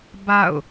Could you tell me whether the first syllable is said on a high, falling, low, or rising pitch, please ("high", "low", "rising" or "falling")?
falling